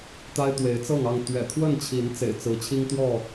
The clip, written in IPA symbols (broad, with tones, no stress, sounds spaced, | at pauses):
t̪ a˦ ɪ̯ t̪ w e˨˦ ɪ̯ t͡s ɤ˥˨ ŋ ɑ˥˨ ŋ t̪ ɥ ɛ̰˨˩ t̪ʰ w ə˥˨ n t͡ɕʰ i˨˦ n t͡s ḛ˨˩ ɪ̯ t͡s ɹ̩˨˦ t͡ɕʰ i˦ ŋ t̪ w ɔ˥˨